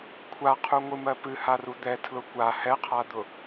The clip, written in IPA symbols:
kʷʰaqʰuŋʷɨmɜ pɨharu d̪ɛtʰlʊ kʷa hɛqʰad̪ʊ

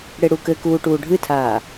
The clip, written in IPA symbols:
ɽeɽukɘkuː ʈuːɖʱɨtʰaː

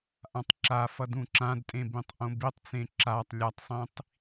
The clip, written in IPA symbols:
ʔãtˤǁafʌ dũǁãdtʼẽ bĩtˤʔõbitˤt͡sẽ ǁatˤ lʲatˤsˤĩtˤ

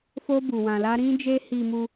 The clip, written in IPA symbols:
fo˦bu˧wã˧la˦ ɾĩ˦d͡ʒe˦ hi˧mu˧

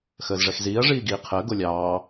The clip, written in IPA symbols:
xəːzʐɛxziːɐ̯ ʐiːɡiːqʰəː ɡolʲɑː

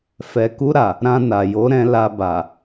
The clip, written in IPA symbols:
fɛ˨ku˧ɾa˨ | ɾã˧na˨ jo˨˦ ɾɛ̃˧la˧ba˨

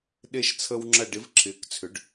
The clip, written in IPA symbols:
ɗe˦ʃt͡sʰə˦w ŋ͡ǁɐ˦˨ɖɪ˨˥v ǁʰɪː˨˥kt͡sʰʏ˨˥ɖ

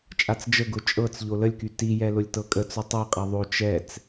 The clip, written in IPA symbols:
t͡ʃʼat͡sd͡ʒəɡʊ t͡ʃʼɤt͡s ʎoləlʲky tijɛ lʊlʲtɤkʼət͡sʊ tˤɛqʼɛ ðˤo t͡ʃɛt͡s

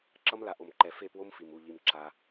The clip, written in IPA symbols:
ǁʌ˦mla˨ ʔo˨mǃɛ˨ fe˦˨pwo˦m fi˨mu˦˨ʎi˧m ǁa˦

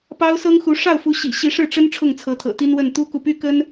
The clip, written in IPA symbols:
pɑ˥ʊ̯sɤ˥ŋxu˧˥ ʂɑ˥˩ʊ̯fu˧˥ɕḭ˨˩ ɕi˧˥ʂɻ̩˥˩ʈ͡ʂə˥n ʈ͡ʂʰʊ˥˩ŋt͡sʰɤ˧˥t̪ʰɤ̰˨˩ t̪i˥nwə˥˩n t̪u˥ku˨ py˥kə˥n

